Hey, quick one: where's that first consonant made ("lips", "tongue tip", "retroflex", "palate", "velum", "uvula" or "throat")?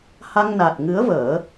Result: throat